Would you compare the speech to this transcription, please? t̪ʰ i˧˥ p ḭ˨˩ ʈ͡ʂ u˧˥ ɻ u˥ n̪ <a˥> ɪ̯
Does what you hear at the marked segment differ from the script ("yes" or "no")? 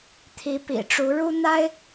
no